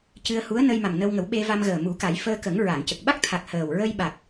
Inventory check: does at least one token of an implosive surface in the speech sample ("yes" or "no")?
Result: yes